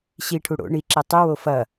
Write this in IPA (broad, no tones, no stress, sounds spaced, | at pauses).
ɕ i ʈʰ u ɽ o̰ ɳ i ǁ i tˤ ɨ w o f ɐ